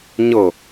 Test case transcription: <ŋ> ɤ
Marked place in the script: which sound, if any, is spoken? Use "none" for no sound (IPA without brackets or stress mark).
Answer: ɲ